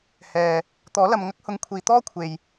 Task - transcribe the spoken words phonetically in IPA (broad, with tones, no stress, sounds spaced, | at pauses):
h ɛː˨ | t̪ ɔː˨˥ l ɐ˨ m ŋ ɐ˥ k̚ h ʊ˨˧ ŋ kʷʰ iː˨ t̪ ɔː˥ kʷʰ e˨ j